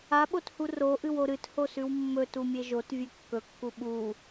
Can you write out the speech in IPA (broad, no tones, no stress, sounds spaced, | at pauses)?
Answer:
a ɓ o t h u r o ʔ ɨ w o ɾ ɨ t h o s ʉ w mː ɵ t u mʲ e ʒ o t vʲ ʉ kː ɵ kː u ɓ u